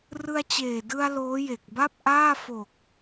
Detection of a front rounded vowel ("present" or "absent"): absent